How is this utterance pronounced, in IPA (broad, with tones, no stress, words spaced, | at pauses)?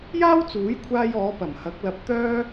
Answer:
jaː˥wt͡suː˨˥jkʷʰaː˧jɔː˨˧ pɐ˨˩mhɐ˨˥k̚lɐ˧p̚ t̪œː˥